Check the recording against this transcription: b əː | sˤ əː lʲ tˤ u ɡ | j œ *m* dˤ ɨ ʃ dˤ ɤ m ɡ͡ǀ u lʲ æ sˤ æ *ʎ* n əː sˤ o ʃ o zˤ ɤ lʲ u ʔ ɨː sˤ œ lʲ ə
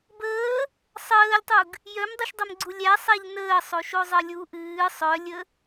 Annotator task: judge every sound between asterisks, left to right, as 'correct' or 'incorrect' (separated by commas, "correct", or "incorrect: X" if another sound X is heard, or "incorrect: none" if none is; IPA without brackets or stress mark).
correct, correct